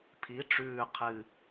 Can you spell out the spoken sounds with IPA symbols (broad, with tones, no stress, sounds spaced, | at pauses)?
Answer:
pʰ i˩˧ ʈ͡ʂ ʉː˨˩ qʰ ɨ˨˩